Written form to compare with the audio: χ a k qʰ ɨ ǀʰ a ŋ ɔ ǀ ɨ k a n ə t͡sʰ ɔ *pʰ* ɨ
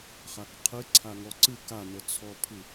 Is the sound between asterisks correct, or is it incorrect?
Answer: correct